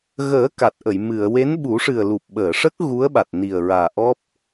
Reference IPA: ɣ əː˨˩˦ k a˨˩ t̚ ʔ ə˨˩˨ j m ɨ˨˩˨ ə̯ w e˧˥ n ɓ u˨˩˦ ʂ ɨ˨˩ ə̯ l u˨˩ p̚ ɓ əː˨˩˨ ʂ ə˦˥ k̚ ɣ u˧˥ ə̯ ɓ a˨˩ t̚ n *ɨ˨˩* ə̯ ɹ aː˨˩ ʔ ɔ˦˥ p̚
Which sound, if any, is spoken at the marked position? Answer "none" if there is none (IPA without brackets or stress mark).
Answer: i˨˩